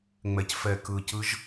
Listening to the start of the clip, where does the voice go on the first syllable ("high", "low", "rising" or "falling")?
low